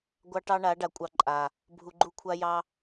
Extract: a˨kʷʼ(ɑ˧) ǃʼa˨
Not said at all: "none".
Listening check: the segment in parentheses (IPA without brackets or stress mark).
ɑ˧